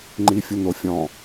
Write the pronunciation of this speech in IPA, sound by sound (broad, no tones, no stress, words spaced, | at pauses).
ŋ͡ǃifʲʊn̪ofʲɔ̃